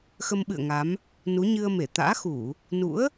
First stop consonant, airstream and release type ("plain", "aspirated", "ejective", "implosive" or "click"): implosive